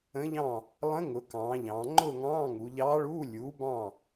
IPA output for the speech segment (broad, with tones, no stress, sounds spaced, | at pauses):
ə̃˧˥ ʎ ɑ̃˥˨ | lˠ ə̃˧˥ ŋ ʊ˩˧ k ɑ̃ː˩˧ ʎ ɑ̃ː˩˧ ŋ͡ǃ ʊː˥˨ ŋ ɑ̃ː˧˥˧ ŋ u˩˧ ʎ ɑː˧˥ ɭ uː˧˥˧ lʲ uː˩˥ b ɑ̃˥˨